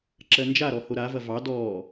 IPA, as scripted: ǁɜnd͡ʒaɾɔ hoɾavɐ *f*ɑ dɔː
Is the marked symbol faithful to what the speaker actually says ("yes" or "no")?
no